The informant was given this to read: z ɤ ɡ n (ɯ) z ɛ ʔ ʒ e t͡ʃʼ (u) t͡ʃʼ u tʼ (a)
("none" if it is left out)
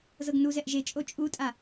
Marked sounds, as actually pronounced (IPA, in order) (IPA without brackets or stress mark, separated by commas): u, o, a